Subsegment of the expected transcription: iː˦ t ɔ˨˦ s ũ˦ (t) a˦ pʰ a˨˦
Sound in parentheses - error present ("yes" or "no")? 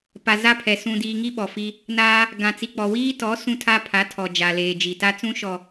yes